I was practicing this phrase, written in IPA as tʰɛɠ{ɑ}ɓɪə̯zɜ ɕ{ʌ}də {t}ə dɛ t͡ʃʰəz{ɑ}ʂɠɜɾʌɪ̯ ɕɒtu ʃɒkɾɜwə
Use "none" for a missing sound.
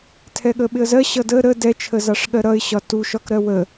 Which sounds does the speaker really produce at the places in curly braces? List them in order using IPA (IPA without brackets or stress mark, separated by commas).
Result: ə, ʌ, ɾ, ɑ